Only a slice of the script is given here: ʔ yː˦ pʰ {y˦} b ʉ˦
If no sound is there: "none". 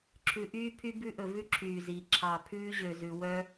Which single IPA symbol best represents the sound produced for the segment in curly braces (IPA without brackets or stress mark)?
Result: y˦